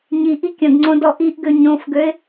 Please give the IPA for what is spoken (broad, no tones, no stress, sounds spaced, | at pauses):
ɲ i ʔ i kʲ ə̃ ɡ ŋ͡ǀ õ d ɔ ʔ i ʔ ɡ ø ɲ õ f ɡ ø ɪ̯